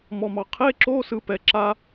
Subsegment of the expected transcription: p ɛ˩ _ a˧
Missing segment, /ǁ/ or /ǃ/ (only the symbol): ǁ